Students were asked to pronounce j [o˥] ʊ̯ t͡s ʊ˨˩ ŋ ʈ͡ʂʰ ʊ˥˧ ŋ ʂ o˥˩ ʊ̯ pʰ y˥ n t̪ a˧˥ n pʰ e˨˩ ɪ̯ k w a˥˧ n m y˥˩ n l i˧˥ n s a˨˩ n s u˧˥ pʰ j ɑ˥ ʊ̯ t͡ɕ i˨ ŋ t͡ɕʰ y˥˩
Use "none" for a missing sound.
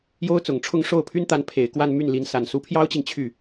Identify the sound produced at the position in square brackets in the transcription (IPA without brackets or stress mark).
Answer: o˥